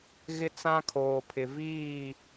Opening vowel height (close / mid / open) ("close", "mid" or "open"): close